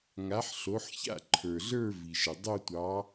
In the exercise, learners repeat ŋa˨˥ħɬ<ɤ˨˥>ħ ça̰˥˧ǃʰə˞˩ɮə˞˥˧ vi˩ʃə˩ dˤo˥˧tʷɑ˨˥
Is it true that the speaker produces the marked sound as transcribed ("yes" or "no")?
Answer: no